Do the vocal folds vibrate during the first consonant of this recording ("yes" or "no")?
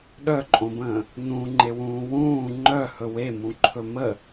yes